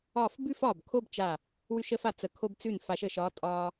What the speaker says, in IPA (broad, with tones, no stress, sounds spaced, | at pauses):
ɒː˧˩ f b ʉ˥˧ f ɒː˧˩ b kʰ o˥˧ b t͡ʃ a˧˩ | w ʉ˧ ʃ əː˧ f a˩˧ t͡s ə˩˧ kʰ o˧ b t͡s ʉ˧˩ n f a˩˧ ʃ əː˧˩ ʃ ɒː˧ tʼ ɒː˧